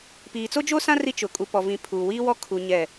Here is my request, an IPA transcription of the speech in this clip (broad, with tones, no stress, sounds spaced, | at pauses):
p iː˨ t͡s o˦ d͡ʒ o˦ s ã˦ r i˦ t͡ʃ ʊ˨ kʼ u˨ p ɔ˨ v ĩ˨ pʰ uː˨ w iː˦ w ɔ˦ kʰ u˨ ɲ ɛ˦˨